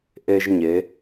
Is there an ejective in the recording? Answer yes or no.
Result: no